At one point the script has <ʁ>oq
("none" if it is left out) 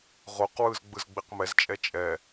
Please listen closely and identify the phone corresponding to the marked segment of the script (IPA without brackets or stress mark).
ʁ